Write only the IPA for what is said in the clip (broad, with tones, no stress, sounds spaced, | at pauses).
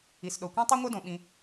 i˩ s ɗ o˩ kʷ ĩ˥ tˤ ʉ˥ ŋʷ œ˥ d õ˩ ɓ ĩ˨